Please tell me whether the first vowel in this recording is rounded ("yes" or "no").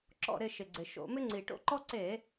yes